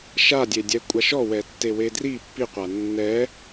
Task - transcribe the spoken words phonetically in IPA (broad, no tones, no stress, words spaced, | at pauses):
ʃadʲe dʲɛkʷʼaʃɔwɛ tːewedri pːiqʷa nːɛ